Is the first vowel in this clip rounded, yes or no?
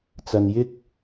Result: no